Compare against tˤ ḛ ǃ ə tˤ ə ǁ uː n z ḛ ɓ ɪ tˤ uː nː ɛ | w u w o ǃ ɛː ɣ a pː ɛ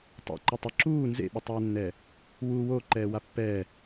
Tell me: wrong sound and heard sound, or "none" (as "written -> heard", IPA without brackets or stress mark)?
ɣ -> w